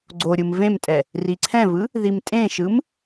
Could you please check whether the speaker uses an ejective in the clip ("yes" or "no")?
yes